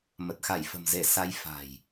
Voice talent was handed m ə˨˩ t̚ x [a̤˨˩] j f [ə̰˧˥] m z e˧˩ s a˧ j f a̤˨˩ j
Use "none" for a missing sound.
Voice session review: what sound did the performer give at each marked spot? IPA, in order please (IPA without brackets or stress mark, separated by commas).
a˧˩, ə̤˨˩